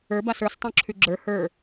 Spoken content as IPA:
ə˞ b a s ə˞ s tˤ õ ǁʰ y ɡ͡ǁ ə˞ h ə˞

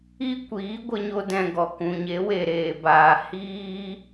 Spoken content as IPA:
i˦ kʷ iː˨˦ ɡʷ ə˦ ɲ o˦ d ɛ̃˧ ɡ ɔ˨ k ũ˨ ɲ e˨˦ w e˨ ɾ eː˨ b aː˨ h iː˦

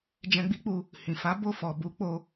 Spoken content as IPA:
d͡ʒ ɛ̃˧ ɡ͡b i˦ k͡p u˧ | h ĩ˨ f a˨˦ b o˦˨ f ɔ˨ b u˨˦ k͡p o˧

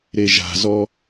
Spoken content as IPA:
ɾ e ʒ a̤ z ɔ

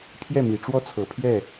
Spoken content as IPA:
pʰ j ɛ˥˩ m i˨˩ ʈ͡ʂ w ɔ˥˩ t͡sʰ ɤ˨˩ pʰ j ɛ˥˩

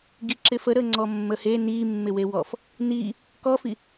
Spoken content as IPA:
ɡ i ǁ ɪ f ə ɾ ə ŋ͡ǀ ɔ mː ə h e n i mː ɪ w e w ɔ f | n i | k ɔ f i

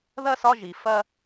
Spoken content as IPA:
ð ɐ˥˧ s ɒ˥˧ ʒ i˩˧ f ɐ˧

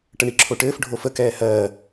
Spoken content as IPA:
ʈ ə ɳ i ǁʰ o ʈ ɘː f ɖʱ o f ə k ɛː h ɜː

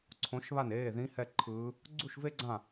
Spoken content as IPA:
ǀʰ õ˧˥ ʃ β a˥˨ n eː˩˧˩ ð ĩ˧˥ h ɛ˥˨ ǃʰ ɯː˧˥ | ɡ͡ǀ u˥˨ ʃ v e˥ ɡ͡ǀ ã˥˨

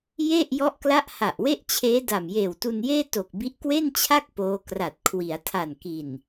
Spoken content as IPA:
j e˥˩ ʔ j ɔ˦˥ ʔ k l a˦˥ ʔ h a˨˩ ʔ w e˥˩ ʔ t͡ɕʰ eː˦˥ d a˨˩ m j eː˨˩ w t u˧ n j eː˥˩ t o˨˩ k̚ b i˦˥ ʔ k w e˥˩ n t͡ɕʰ a˥˩ k̚ p oː˦˥ k r a˨˩ t̚ kʰ w i˩˦ a̯ tʰ a˨˩ n k i˨˩ n

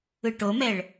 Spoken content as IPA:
ɯ ʈ o m ɛ ɭ

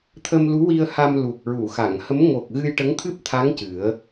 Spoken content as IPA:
t̪ʰ ə˧ m l u˧˥ w i˧ ə̯ h a˧ m l u˨˩ k̚ ɹ u˨˩˨ x a˨˩˨ ŋ h ə˧˥ m ŋ o˨˩ k̚ ɣ ɨ˧ j ʈ ə˧˥ ŋ t̪ʰ ɨ˦˥ p̚ t̪ʰ a˧˥ ŋ c ɨ˨˩˦ ə̯

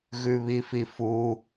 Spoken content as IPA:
ɣ ʉ β i f i f u

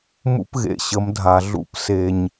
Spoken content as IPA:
m ṵ˦ p ɣ ḛ˨ ɕ ə˨˦ m dʱ a˨ ɮ ṵ˦ p s e˨ ɲ

